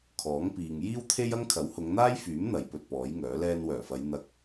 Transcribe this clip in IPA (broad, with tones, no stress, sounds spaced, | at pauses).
kʰ ɔː˨˥ ŋ p iː˨ ŋ j iː˥ w t̪ʰ e˥ j ɐ˥ ŋ kʰ ɐ˨˥ w h ʊ˨˧ ŋ n̪ aː˥ j f yː˨˥ m n̪ ɐ˨˧ j p ɵ˧ t̚ p ɔː˨˥ j ŋ œː˨˥ l ɛː˧ n w œː˨˩ f ɐ˨˧ j n̪ ɐ˧ k̚